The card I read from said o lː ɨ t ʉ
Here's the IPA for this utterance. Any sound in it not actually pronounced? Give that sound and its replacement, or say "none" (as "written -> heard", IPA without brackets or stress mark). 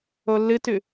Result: none